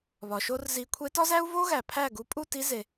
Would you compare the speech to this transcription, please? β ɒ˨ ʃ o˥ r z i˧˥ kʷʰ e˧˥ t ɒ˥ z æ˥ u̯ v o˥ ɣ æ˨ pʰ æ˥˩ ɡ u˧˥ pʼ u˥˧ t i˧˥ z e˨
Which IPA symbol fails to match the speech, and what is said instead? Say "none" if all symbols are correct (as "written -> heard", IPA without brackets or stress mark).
none